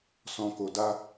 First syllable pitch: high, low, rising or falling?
low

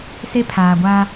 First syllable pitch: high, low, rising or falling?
high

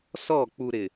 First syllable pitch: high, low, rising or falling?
falling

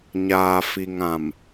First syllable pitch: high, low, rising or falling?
low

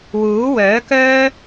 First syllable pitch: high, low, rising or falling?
rising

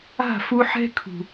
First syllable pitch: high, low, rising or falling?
falling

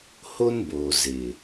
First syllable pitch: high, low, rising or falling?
high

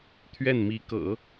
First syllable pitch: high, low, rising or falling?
falling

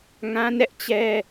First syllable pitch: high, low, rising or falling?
high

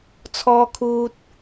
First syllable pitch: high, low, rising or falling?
high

